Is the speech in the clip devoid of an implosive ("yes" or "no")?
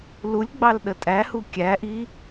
no